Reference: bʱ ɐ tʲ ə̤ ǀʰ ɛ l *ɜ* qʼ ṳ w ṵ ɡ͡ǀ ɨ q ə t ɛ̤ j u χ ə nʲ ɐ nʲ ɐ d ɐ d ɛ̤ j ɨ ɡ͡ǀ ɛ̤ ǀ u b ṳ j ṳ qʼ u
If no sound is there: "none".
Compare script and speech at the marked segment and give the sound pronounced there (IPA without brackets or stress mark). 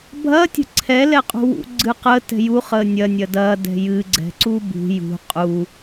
ɛ